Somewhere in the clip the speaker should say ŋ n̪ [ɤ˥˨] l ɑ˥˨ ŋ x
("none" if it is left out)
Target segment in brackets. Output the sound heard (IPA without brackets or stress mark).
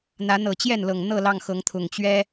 ɤ˥˨